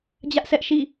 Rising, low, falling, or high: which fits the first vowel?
high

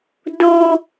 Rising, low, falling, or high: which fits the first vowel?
high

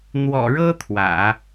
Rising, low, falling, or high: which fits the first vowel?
low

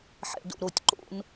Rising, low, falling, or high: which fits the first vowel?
low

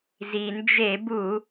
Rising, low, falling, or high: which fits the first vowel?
low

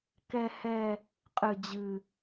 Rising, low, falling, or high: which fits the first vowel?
high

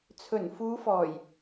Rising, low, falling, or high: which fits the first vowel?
low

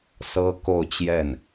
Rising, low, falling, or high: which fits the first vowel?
high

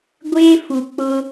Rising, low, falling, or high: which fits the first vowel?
high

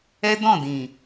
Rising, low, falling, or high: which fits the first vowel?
high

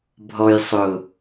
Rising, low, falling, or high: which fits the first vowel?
low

